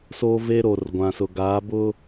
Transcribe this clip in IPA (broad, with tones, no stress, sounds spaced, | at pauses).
s o˦ v e˦ ɾ o˨ r ɡʷ ã˨ s ʊ˨ ɡ aː˨˦ b ʊ˦